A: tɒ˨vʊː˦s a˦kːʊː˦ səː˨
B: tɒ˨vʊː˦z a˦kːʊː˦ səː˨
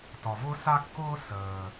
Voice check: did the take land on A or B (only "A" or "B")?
A